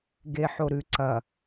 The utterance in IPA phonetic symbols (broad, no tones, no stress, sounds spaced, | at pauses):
ɡ e ħ o ɾ ʉ ǀ ɐ